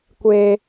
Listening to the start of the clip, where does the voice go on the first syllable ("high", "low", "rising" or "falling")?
high